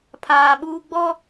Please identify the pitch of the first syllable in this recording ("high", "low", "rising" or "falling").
high